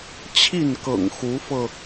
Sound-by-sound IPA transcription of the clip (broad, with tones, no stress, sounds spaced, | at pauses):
t͡ɕʰ i˥˨ n k ɤ̰˨˩ ŋ x u˨˦ f ɤ˧